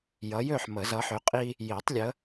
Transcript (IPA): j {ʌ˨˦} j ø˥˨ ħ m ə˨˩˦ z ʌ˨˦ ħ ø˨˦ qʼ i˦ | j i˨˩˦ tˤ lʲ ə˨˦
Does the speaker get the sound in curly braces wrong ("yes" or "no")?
no